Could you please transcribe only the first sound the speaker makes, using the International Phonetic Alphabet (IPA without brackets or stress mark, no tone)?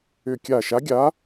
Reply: ʏ